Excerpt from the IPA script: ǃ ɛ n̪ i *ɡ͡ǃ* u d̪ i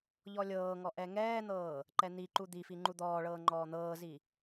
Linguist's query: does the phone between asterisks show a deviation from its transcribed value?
yes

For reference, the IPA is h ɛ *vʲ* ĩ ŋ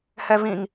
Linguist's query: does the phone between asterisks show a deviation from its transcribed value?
yes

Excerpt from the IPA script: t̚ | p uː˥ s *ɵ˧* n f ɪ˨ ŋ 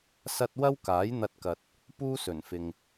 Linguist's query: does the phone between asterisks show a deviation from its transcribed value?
yes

